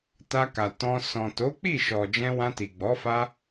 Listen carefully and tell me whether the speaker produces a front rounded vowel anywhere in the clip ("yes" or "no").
no